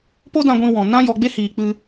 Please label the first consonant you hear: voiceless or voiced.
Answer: voiceless